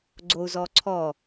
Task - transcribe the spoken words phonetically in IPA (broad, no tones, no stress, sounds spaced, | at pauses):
ɡ͡ǀ o u̯ z ɔ ǀʰ ɔ